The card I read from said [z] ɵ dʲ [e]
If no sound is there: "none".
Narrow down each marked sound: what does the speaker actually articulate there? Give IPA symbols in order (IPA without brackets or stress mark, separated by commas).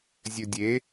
zʲ, e